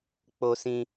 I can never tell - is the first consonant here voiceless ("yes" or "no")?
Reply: yes